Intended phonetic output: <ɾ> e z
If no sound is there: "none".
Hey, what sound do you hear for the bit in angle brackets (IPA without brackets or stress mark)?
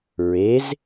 ɹ